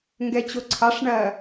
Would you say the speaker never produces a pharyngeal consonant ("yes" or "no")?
yes